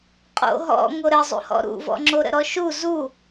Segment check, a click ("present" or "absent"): present